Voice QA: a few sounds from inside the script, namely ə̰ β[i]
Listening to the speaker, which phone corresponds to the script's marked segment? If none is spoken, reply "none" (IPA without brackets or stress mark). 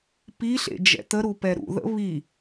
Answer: i